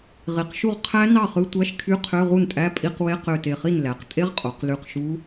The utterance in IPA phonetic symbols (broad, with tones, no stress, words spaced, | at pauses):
ʁi˩˧qʃu˥˩ʁ qʰæ˦˥nɑ˥˩χɯ˧˥˧ tʷæ˧˥˧ʃ kʰy˧˥˧qʰø˧˥˧ ʁu˥˩ntʼæ˧˥˧ pʼi˧˥˧q we˧˥˧qø˧˩te˧˩χi˥˩n læ˩˧q tʼe˦˥ʁqʼo˩˧q ly˧˩qʃu˦˥